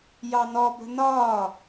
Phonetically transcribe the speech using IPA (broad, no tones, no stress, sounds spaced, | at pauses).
j ɑ n ɔ b ə̤ n ɒ